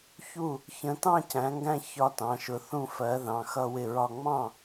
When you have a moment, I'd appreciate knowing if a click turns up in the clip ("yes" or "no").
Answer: no